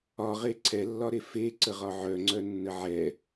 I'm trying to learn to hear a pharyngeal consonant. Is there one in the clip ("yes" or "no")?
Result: yes